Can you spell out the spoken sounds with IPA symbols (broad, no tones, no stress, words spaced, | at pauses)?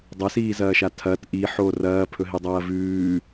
dˤɐsiːzɐːʃa tʰɐt ʔiħo rɐːpʰɵɦidˤɐː vʉː